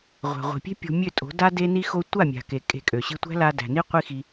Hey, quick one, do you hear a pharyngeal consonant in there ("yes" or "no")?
no